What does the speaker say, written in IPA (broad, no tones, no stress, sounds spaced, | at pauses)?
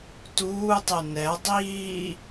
t uː tˤ e n ɛ dˤ iː